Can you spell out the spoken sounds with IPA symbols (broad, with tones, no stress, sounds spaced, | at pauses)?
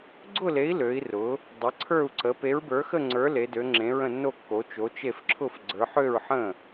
ɡ͡ǀ ʊ˥˨ l e˨˥ i̯ l ø˨˥ i̯ r ʊ˨˥ | dˤ ə˨˥ ǀʰ ə˞˥˨ u̯ ǀ ə˨˥ p e˨˥ ɹ b ə˞˨˥ x ə˥˨ ŋ͡ǀ ə˞˨˥ l e˨˥ d ø˨˥ ŋ͡ǁ ẽ˨˥ ɹ ə̃˥˨ nː o˥˨ kː o˨˥ t͡ʃ o˨˥ t͡ʃ e˥˨ f ǁʰ ʊ˥˨ f ɡ͡ǀ ə˞˨˥ ħ ø˥˨ ɹ ħ ə̃˥˨